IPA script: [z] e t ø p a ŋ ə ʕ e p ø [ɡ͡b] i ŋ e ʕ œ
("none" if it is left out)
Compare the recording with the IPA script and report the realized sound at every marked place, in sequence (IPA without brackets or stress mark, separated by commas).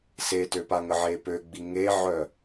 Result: s, ɡ͡b